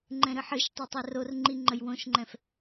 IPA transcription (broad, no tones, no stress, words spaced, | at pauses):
ŋ͡ǃɛ̃ɾɨħɨʃtˤo tˤɛrorŋ͡ǃi ŋ͡ǃəjwõʃŋ͡ǃɛ̃f